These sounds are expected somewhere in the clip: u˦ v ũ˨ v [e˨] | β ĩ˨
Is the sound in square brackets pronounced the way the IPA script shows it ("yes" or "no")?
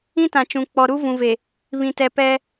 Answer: yes